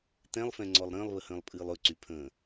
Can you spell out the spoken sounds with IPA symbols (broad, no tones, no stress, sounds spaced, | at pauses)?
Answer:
t ɛ̃ lˠ f ɛ̃ ŋ͡ǀ ɔ lˠ ɾ ə̃ː lˠ β ə h ə̃ː lˠ pʼ ɨː lˠ ɵ ǀ y pʰ ə̃ː